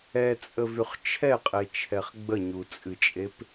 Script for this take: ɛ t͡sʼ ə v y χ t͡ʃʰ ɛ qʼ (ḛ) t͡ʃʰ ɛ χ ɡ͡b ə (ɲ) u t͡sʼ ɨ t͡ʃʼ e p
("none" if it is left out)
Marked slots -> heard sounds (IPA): e, ɲ

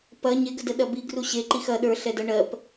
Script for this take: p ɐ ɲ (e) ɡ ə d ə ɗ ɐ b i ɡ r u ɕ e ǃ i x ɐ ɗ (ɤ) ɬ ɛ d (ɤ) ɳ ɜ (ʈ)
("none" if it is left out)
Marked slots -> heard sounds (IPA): e, ə˞, ɤ, p

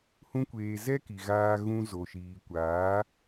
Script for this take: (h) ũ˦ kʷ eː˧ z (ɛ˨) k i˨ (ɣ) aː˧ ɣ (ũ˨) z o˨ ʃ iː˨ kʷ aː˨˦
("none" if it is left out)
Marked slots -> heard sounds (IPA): h, ɛ˦, ɣ, ũ˧

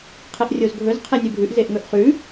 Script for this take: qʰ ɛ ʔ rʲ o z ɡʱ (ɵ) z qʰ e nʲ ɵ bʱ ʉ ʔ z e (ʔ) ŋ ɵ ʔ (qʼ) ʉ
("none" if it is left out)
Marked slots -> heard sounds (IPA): ɵ, ʔ, χ

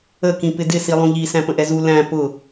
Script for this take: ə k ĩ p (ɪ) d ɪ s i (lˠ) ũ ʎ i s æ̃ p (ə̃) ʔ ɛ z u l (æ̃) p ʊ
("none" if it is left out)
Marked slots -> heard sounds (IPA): ɪ, lˠ, ə̃, æ̃

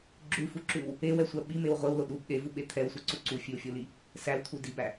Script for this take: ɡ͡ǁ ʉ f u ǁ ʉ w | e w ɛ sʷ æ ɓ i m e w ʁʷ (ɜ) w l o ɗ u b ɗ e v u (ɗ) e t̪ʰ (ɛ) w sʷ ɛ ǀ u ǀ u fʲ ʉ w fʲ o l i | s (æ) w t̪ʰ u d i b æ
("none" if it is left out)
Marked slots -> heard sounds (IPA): ɛ, ɓ, ɛ, æ

